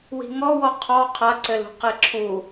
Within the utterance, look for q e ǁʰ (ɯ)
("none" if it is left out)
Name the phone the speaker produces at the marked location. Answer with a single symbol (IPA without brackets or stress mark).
u